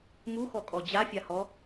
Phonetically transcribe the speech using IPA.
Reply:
muxɔkʼɔ d͡ʑafʲahɔ

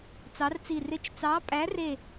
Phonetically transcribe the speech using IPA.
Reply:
t͡sɑ˨˥rt͡si˧˩ rɪ˧˥˧t͡ʃ t͡sɑ˨˥pʼæ˨˥re˧˩

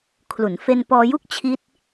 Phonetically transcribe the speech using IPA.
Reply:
kʰlu˩˦nfe˧n pɔː˧ju˥˩k̚ t͡ɕʰi˦˥t̚

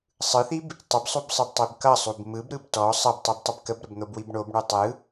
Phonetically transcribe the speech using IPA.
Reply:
sˤɯθib | tˤɪbsˤubsˤɯbtˤib kʌsˤub mɯbɾɯb tɔ sˤʌbtˤɯbtˤəb kəbɾəbn̪obwib ɳobɳu tˤɯ

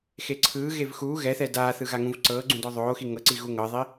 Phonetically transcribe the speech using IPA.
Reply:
xeǀʰɯːɣev xuː ɣɛθɛ daːθɯ ɣaŋũvǀɤːɡ͡ǀũ dɔðˤoːxi ŋɤǀi ɣuŋɤðˤi

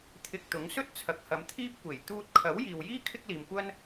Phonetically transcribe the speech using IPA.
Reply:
t̪ʰɪ˧k̚t̪ʊ˨˥ŋ sɵ˥t̚t͡sʰɐ˨˥k̚hɐ˨˧m t̪ʰiː˥p̚kʷe˨˩j t̪uː˧t̚kʰɐ˨˥w jiː˨wjiː˥ kʰɪ˥k̚liː˨mkʷɐ˥n

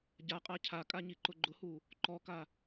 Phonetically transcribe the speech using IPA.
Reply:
ɟaqʼa cʰakʼaɲiǃʊ ɡ͡ǃʊhu | ǃɔka

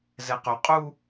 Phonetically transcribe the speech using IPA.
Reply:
zɛqɵ qʼu

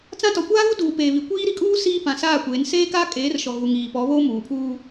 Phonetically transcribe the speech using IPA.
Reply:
t͡sã˦ tɔ˨kʷaː˦ɣu˦ duː˨ peː˨ βi˨kʷiː˦ ɾi˨kʼuː˦ siː˦pã˨saː˦˨kʷeː˨˦n seː˦ka˦ kʼeː˨˦rʃɔ˨ ɣu˨ŋiː˨pɔ˨˦ βoː˦ muː˨pʰuː˦

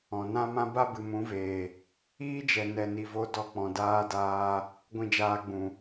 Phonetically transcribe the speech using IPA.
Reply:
ɔ̃˨nã˦mã˦ ba˦bɨ˨mũ˨˦veː˨ | iː˦d͡ʒɛ˨ nɛ˧ni˧vo˦ dɔ˧k͡pɔ̃˨ daː˦daː˦ | ɡʷĩ˧d͡ʒaː˧ɡ͡bũ˨

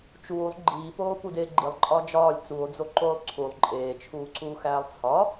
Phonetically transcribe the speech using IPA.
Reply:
t͡ʃuːlˠ ɡ͡ǃiːpoː pudeːɡ͡ǃilˠǃʼɒː d͡ʒɒːlʲ t͡suo̯d͡zo ǃoːlˠǀʰulˠ ǃʼeːt͡ʃʰuːǀuː xæːlˠt͡sʰɒ

